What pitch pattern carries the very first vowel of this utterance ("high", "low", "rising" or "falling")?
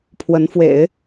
rising